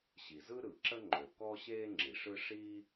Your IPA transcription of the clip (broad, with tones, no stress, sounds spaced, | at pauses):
ɕ i˩ z ɯ˥ ɾ ɯ˩ ǁ ə˥ ŋ͡ǃ ø˩ k ɔː˥ ɕ eː˥ ŋ͡ǁ i˩ ʂ ɯ˥ ʂ iː˥